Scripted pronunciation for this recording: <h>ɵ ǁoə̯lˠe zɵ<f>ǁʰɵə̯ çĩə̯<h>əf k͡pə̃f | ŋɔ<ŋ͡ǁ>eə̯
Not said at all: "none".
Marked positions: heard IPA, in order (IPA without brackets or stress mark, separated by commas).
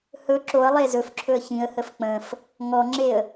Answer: h, f, h, ŋ͡ǁ